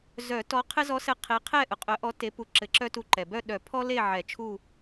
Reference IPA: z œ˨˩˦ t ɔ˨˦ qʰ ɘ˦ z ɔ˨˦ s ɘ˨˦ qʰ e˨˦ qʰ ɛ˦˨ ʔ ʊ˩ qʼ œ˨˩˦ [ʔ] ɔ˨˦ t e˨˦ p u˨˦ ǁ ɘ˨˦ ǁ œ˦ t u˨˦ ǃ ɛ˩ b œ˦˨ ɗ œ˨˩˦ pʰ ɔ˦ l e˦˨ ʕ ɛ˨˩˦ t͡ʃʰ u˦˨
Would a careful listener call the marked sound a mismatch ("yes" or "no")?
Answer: no